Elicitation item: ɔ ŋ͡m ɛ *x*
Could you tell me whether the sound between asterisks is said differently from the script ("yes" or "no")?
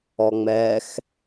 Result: no